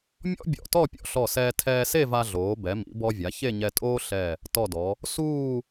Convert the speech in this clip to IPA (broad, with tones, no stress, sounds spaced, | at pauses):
mʲ ɔ̰˥ bʲ ɔ̰˧˩ t ɔ˥˧ pʲ ɔ̰˥˧ ɬ ɔ˧˩ s ɛː˧ tʰ ɛː˧ s e˥˧ v a˧ ɮ oː˩˧ b ɛ˩˧ m ḭ˩˧ b ɔ˧ vʲ a˩˧ ç e˥˧ ɲ ɛ˧ tʼ oː˥ ɬ ɛ˧˩ | t ɔ˧˩ d ɔ˩˧ | s uː˥˧